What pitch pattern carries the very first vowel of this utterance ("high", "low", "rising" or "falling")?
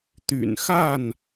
low